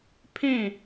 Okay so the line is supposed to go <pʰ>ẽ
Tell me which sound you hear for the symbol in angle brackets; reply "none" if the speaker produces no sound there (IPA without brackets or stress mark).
pʰ